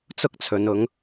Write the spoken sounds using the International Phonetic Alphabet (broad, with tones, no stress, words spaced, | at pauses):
t͡sʊ˥k̚t͡sʰɵ˨˧nʊ˨˥ŋ